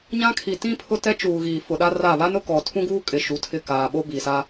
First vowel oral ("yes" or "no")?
no